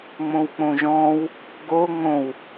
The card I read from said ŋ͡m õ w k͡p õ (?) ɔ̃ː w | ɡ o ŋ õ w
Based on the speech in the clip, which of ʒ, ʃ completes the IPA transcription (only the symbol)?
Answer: ʒ